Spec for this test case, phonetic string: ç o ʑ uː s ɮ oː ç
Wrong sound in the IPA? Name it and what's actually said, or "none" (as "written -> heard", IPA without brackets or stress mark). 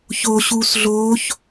ʑ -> ɕ